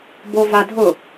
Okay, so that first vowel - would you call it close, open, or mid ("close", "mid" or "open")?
mid